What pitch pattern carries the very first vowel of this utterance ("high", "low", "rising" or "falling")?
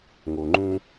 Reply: low